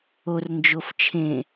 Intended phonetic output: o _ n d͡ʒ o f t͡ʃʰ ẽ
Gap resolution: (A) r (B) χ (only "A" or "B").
A